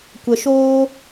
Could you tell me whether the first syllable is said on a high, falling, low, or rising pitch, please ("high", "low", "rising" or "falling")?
low